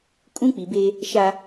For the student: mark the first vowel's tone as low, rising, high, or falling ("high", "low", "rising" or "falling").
high